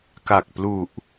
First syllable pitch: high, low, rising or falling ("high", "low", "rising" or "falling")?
low